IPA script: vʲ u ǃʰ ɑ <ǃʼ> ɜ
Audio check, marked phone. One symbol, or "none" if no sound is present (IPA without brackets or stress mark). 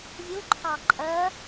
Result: ǃʼ